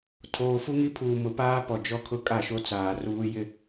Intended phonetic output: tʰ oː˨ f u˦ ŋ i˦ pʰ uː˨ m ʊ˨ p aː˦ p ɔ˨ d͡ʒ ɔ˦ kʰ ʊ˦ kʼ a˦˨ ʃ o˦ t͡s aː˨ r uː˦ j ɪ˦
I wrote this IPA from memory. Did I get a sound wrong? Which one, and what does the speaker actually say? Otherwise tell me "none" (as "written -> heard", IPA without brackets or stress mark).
none